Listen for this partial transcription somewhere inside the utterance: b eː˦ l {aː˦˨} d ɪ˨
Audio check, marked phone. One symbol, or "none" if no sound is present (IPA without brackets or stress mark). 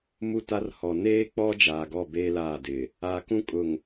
aː˦˨